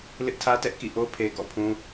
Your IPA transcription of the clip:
l ɪ˦ ʔ tʰ ä˦ t ɛ˦ ʔ k ḭ˦˨ ʔ o˦ pʰ e˨ ɡ ɔ̰˦˨ pʰ ũ˦

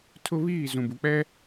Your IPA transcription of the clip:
tʰ ʊ˦ β iː˦˨ z ũ˨ b u˨ k͡p ɛ˦

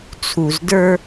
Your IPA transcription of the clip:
t͡sʰ u˨ z d ə˞˦

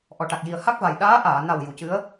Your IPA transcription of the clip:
ʔ ɔ˨˩ ʈ a˨˩ k̚ j i˨˩ ə̯ h a˦˥ k̚ v a˨˩ j ɗ aː˧˥ ʔ aː˨˩˨ n a˨˩ w j u˨˩˨ c ɨ˧˥ ə̯

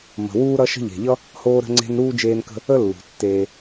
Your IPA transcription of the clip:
m ə̤˩ w uː˥ ɾ ʌ˥ ʃ ə̤˦ ʎ e̤˩ ʎ ʌ˥ | h oː˦ ɾ ə̤˦ ŋ͡ǀ e̤˦ n ɾ uː˥ d͡ʒ eː˦ n k ə̤˦ | ə˥ lː ṳ˩ tː eː˨

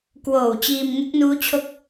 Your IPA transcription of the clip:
k w oː˨˩ w t͡ɕ iː˧ m ŋ e˦˥ k̚ n uː˦˥ t͡ɕʰ o˦˥ k̚

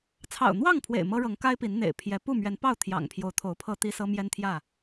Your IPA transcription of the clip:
t͡sʰ ɑ̰˨˩ ʊ̯ n̪ w ɑ˥˨ ŋ pʰ w ḛ˨˩ ɪ̯ m ɤ˦ ɻ ɤ˨˦ ŋ k a˦ ɪ̯ p i˨˦ n n̪ ḛ˨˩ ɪ̯ pʰ j ɛ˨˦ p u˥˨ m ɥ ɛ˨˦ n p ɑ˥˨ ʊ̯ t̪ʰ j ɑ̰˨˩ ŋ pʰ j o˨˦ ʊ̯ t̪ʰ o˨˦ ʊ̯ pʰ ɤ˦ t̪ i˦ s ɤ˦ m j ɛ˦ n t̪ʰ j ä˥˨

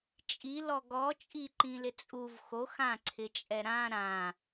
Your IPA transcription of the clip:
t͡ʃʼ i l ɔ ɡ ɔ t͡ʃʼ i ǃ ĩ l ɪ t͡sʼ u v x o x ã ǀʰ ɪ t͡ʃʼ ɛ ɾ ã ɾ ã

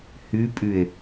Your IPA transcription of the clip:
h y pʼ y e̯

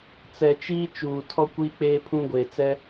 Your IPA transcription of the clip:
t͡s ɛ˨ t͡ʃ iː˦ t͡ʃ uː˨ tʰ ɔ˦ kʷ iː˦ k͡p eː˦ pʰ ũ˦ ɡʷ eː˨ t͡s ɛ˦

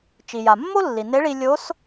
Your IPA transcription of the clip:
t͡ʃ i˩ j a˩ mː o˥ lː i˩ n e˧˥ ɭ i˧ lʲ o˧˥ s

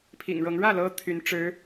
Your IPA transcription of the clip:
pʰ ḭ˨˩ ŋ ɻ ɤ˧˥ ŋ ɻ ä˥˩ l ɤ˧˥ t̪ʰ y˧˥ n ʈ͡ʂ ɻ̩˧˥

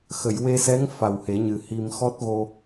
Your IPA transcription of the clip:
x ə˨˩˨ j w e˧ s ɛ˧˥ ŋ f a˨˩ w h e˨˩˦ ɲ ɨ˨˩ h i˧ m x ɔ˦˥ t̚ ɣ o˧

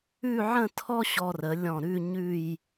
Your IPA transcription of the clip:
ʉ˥˧ ʕ ə̃˥˧ tʰ ɔ˥ ɕ ɔ˧ r ə˩˧ lʲ ɔ̃˧˩ ɾ ʉ˥˧ ɲ ʉ˥˧ j

